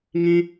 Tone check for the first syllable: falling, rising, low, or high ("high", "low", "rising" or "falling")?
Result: high